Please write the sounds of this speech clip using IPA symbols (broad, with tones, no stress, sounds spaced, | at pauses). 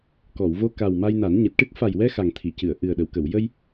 k ɔ˨˩˨ w v o˧ k a˨˩ w m a˧ j n a˨˩˦ n ɲ ɨ˨˩ t̚ ʈ ɨ˦˥ k̚ f a˨˩ j w ɛ˧ x a˨˩ ŋ t̪ʰ i˨˩˨ c ɨ˨˩˨ ə̯ ʔ ɨ˨˩ ə̯ ɗ ə˨˩˨ w k ə˨˩˨ w j ə˧ j